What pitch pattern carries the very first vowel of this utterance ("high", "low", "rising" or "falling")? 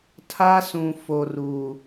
high